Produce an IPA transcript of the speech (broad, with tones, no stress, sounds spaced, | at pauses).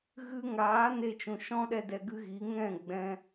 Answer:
ɣ ɨ˧ ŋ aː˨˦ n e˧ t͡ʃ ũ˨ ʃ ɔ̃˦ ɗ ɛ˧ d ɛ˧ ɡ ɨ˦ ɣ i˨˦ ŋ ɛ̃˦˨ ɡ͡b ɛ̃˧